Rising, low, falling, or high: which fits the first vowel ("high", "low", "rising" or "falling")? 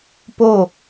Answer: falling